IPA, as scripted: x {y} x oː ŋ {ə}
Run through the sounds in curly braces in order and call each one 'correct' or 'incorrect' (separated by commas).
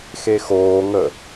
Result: incorrect, correct